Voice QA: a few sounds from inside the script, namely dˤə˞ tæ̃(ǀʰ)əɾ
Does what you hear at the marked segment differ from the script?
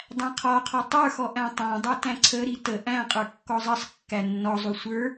no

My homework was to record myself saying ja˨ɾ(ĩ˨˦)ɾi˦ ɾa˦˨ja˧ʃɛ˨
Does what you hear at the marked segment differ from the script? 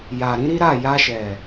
no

